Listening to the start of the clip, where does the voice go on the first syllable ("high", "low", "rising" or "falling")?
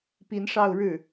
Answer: rising